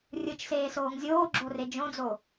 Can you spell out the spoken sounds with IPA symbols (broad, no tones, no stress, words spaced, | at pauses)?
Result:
rʲɯt͡ʃseːsoːŋ zʲoːɡ͡ǁore d͡ʒõd͡zo